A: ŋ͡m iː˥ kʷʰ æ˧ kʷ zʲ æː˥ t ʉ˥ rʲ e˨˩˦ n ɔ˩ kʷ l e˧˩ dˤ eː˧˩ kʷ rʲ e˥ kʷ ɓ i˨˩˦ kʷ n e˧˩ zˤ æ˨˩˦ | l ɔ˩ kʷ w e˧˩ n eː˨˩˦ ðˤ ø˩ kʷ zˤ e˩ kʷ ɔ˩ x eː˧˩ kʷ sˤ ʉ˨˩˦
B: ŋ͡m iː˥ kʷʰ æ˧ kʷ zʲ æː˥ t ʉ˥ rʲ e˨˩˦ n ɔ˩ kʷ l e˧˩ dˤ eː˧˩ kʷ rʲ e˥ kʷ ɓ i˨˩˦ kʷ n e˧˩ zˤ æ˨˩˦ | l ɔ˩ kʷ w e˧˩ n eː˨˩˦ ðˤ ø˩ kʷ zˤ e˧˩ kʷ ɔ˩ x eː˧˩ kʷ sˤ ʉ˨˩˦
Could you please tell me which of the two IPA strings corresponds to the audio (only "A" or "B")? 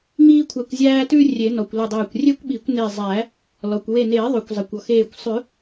A